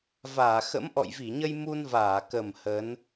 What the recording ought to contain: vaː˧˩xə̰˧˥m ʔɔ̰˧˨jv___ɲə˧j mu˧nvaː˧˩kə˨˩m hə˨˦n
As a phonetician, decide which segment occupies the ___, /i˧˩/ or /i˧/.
i˧˩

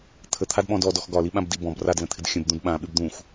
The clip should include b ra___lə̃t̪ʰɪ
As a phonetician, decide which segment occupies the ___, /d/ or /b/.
d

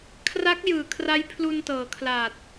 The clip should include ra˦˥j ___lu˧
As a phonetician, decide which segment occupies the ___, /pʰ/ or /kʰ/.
pʰ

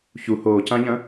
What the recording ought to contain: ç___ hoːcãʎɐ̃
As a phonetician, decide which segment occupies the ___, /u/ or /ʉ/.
u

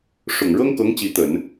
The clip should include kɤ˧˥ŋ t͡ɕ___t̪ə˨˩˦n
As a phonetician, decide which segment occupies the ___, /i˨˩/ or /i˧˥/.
i˧˥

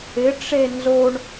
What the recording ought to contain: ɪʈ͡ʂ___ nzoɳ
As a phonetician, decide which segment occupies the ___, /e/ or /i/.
e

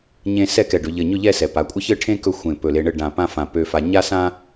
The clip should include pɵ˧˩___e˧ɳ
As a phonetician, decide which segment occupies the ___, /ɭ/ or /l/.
l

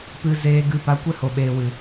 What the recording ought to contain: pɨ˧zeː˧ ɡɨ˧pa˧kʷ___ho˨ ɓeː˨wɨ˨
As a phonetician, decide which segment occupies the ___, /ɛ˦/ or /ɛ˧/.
ɛ˦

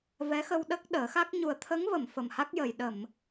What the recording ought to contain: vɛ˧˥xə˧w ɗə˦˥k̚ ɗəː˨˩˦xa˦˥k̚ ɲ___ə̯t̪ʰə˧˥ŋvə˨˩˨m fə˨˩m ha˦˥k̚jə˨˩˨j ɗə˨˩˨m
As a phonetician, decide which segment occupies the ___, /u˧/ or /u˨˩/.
u˨˩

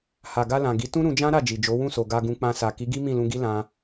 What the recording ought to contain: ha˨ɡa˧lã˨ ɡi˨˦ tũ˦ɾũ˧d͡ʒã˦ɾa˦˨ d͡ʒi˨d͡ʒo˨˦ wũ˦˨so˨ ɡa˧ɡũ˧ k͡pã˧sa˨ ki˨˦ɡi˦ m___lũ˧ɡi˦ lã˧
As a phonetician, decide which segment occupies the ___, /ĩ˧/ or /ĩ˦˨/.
ĩ˦˨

